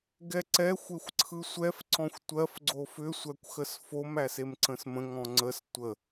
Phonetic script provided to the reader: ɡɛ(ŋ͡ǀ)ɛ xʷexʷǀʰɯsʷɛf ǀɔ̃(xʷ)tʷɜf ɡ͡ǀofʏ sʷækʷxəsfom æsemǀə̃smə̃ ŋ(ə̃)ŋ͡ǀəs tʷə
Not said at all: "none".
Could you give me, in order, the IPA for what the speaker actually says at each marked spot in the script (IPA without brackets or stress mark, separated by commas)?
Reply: ǀ, xʷ, ɔ̃